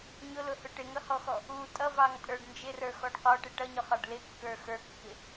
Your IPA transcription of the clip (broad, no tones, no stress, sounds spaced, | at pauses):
ɲ ʊ l ʊ h ʊ ʈ ɪ ŋ ʌ h ɔ x ɔ | u tʼ ʌ v ɑ ŋ pʼ ə˞ ɖ n d͡ʒ ɪ r ə˞ x ɔ ɖ q ɔ ʈ ɪ ʈ ʌ ɲ ʊ χ ɑ ɖ l ɪ kː ə˞ x ə˞ kː ɪ